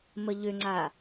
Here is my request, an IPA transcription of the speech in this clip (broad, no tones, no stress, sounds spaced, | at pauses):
m ə ʎ ø ŋ͡ǀ a